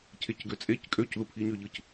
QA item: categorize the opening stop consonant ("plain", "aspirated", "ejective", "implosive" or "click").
aspirated